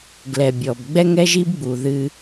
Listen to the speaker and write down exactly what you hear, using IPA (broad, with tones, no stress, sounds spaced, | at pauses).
ɡ l ɛ˨ bʲ ɔ˨ b ɡ͡b ɛ˦ ŋ ɛ˦ ʒ i˦ b ɡ͡b u˨ ð ɨ˦